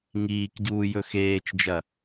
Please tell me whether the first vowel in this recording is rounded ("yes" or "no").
no